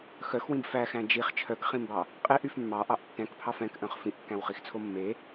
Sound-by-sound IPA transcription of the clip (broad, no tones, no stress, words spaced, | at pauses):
xœxwĩb fæxæ̃ d͡ʒiχ t͡ʃʰœkχĩmbɑ | qʼeʔyf mːɑʔɑʔ tːɛ̃kpʰɑf ɛ̃kʔœ̃χ fĩʔkːæ̃wχixt͡sʰo mːe